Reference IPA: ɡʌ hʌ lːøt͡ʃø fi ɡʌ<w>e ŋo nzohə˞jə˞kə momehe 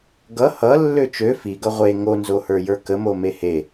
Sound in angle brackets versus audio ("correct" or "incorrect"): incorrect